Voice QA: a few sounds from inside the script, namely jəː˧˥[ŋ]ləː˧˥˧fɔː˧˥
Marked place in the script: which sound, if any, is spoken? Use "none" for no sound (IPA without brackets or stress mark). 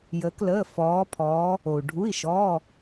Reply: k